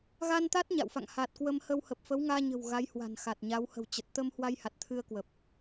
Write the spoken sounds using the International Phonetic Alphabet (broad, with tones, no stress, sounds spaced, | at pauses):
ɣ a˧ n t̪ a˦˥ t̚ ɲ a̰˧˨ w f a̰˧˨ ŋ h a˨˩ t̚ k w ə˧ m h ə˧ w h ə˨˩ p̚ f ə˨˦ w ŋ aː˧ ɲ ə̤˨˩ w ɣ a˨˦ j h w a̤˨˩ n x a˨˩ t̚ ɲ a˨˦ w h ə̤˨˩ w t͡ɕ ə˨˩ t̚ t̪ ə˧ m h w a˧ j h a˨˩ t̚ t̪ʰ ɨ˧ ə̯ k w ə˨˩ p̚